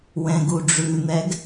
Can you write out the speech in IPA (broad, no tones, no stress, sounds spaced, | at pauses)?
w ɛ̃ ɡ u ɖ͡ʐ ʉ n̪ ɛ ɡ